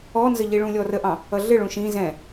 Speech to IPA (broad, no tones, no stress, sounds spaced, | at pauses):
ɔ n z ə ʎ i ɭ ũ lʲ ɔ r ə ʔ ɑ̃ | ʌ ɮ ɪ ɭ ũ ʃ ĩ z ɛ̃